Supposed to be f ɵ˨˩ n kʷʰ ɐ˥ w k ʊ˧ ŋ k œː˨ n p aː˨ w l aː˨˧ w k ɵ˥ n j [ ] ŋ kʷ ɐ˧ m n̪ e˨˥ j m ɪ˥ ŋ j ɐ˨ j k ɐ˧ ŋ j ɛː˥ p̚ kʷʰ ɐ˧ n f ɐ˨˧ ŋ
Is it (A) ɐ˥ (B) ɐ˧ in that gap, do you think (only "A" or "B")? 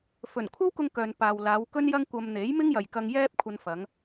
A